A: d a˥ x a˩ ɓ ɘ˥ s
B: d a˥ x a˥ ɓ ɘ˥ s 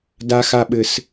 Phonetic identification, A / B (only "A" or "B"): B